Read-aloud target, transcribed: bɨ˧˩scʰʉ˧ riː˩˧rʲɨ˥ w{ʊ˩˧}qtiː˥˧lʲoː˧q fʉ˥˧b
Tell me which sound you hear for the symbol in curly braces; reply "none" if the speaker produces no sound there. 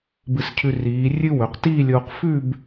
ɵ˩˧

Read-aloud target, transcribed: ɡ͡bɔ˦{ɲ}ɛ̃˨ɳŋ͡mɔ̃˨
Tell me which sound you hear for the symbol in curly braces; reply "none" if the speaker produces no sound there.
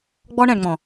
ɳ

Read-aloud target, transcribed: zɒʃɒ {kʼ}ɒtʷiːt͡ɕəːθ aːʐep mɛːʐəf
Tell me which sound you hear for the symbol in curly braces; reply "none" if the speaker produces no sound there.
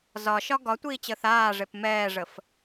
ɡ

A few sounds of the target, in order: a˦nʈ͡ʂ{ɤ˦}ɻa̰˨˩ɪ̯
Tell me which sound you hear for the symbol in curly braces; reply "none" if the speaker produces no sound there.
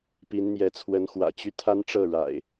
ɤ˥˨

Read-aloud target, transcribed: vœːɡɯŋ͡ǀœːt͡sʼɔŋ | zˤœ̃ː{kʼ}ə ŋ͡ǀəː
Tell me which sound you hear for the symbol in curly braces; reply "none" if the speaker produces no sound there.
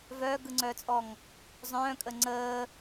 kʼ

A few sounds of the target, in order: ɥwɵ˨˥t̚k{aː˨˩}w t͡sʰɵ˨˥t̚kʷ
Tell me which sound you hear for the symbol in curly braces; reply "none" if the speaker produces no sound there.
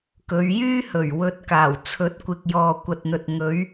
aː˨˩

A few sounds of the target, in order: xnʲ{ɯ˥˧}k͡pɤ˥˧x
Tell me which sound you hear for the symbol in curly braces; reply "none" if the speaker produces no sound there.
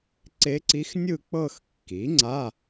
ɯ˥˧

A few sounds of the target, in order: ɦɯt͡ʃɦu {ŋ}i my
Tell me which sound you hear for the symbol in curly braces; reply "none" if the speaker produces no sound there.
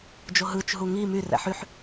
ŋ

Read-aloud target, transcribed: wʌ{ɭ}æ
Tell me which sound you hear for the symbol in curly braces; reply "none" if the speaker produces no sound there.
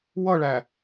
ɭ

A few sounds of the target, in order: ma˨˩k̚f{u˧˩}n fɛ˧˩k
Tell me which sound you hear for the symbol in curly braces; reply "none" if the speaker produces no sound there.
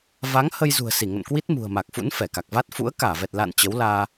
ṵ˧˥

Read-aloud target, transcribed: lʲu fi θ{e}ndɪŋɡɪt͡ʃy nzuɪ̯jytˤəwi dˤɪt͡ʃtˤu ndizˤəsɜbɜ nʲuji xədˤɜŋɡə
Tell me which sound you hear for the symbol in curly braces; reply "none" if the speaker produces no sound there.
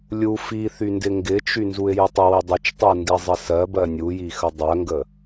y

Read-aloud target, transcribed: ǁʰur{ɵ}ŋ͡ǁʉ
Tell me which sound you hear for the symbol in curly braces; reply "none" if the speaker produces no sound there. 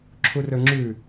ɵ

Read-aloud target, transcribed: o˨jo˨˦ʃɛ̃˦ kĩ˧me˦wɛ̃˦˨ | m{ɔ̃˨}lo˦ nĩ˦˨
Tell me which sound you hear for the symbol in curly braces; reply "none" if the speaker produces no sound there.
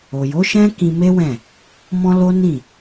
ɔ̃˦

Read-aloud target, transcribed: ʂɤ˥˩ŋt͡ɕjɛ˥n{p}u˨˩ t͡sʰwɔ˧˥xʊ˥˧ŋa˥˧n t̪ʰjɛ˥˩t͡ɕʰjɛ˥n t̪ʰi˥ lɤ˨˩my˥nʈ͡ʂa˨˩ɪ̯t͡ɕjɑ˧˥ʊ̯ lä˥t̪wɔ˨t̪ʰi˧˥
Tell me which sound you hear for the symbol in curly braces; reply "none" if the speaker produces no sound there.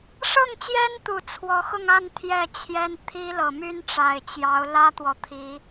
t̪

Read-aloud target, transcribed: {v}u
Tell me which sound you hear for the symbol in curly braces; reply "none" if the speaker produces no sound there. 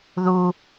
ð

